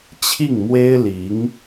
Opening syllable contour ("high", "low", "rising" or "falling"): falling